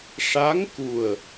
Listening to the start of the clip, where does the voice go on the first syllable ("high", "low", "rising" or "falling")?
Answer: rising